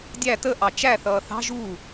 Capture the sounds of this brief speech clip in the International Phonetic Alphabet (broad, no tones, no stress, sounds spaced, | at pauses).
dʲ æ t ə ʔ ɑ t͡ʃ æ θ ʌː θ ɑ̤ ʒ u